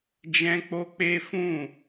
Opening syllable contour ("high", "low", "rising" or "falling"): high